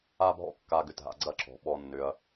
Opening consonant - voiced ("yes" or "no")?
yes